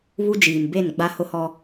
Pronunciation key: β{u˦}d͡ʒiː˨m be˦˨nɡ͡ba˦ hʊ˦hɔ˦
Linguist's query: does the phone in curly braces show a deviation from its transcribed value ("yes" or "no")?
no